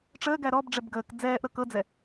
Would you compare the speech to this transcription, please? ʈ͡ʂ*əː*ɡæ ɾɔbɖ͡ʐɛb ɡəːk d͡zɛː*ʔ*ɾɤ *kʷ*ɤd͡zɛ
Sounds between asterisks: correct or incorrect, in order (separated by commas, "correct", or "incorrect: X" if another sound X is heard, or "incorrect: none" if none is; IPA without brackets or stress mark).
correct, correct, incorrect: k